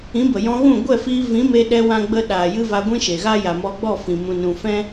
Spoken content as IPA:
ĩ˨˦ b ə˨ j ɔ̃˧ ɣ ũ˦˨ ɡʷ ɛ˦˨ f iː˧ v ĩ˨˦ m e˧ ɗ ɛ˧ w ã˦ ɡ͡b ə˦ ɗ aː˨ j ɨ˦ v a˧ ɡʷ ĩ˦ ʃ e˨ ɣ a˦ j a˨ m ɔ˧ ɡ͡b ɔ˦˨ f ĩ˨ m ũ˧ n ũ˧ f ɛ̃˦

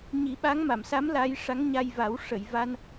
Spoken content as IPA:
ɲ i˨˩˦ ɓ a˧˥ ŋ m a˨˩˨ m s a˧˥ m l a˧˥ j ʂ a˧˥ ŋ ɲ a˧ j v a˨˩˦ w ʂ ə˨˩˨ j v a˧ n

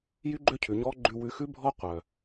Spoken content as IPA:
j y˥ ɡ͡ǃ ø˥ cʰ ʉ˩ ɲ ɔː˥ ɡ͡ǃ ʉ˧ w ʉ˧ x ʉ˥ bʱ ɔ˥ qʷ œ˩

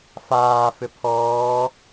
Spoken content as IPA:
f aː f ʏ pʰ ɔː

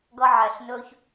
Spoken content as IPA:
ɡ ʌ˧ ʕ æ˩ ɬ n ɵː˧ ç

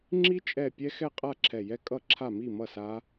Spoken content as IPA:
ŋ͡ǁ i˦˥ t͡ʃʼ ɛ˧˩ pʲ ɛ˦˥ x ɛ˥˨ qʼ a˥˨ ǁʰ ɛ˧˩ j ɛ˦˥ kʼ ʌ˥˨ ǁʰ a˥˨ m i˥˨ m ʌ˥˨ s a˦˥

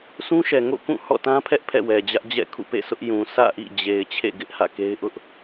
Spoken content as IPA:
s ũ˦ ʃ ɛ˨ ŋ o̰˦˨ k ũ˦˨ h ɔ̰˦˨ t ã˦ pʰ ɛ˦ ʔ pʰ ɛ̰˦˨ w ɛ˨ d͡ʑ ä˦ ʔ d͡ʑ ɛ̰˦˨ kʰ ṵ˦˨ p ḛ˦˨ sʰ ʊ˦ ʔ j ũ˨ s ä̰˦˨ ʔ ḭ˦˨ d͡ʑ e˨ ɪ̯ t͡ɕʰ ḛ˦˨ ɡ ɪ˦ ʔ h ä̰˦˨ k e˦ ɪ̯ ʔ ʊ˦ ʔ

